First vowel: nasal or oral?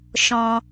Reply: nasal